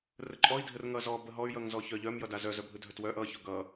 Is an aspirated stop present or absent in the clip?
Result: absent